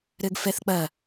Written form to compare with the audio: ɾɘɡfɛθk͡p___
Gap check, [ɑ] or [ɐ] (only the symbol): ɐ